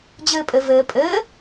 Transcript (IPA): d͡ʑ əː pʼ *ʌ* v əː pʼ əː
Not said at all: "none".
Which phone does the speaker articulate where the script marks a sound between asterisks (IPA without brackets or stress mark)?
ə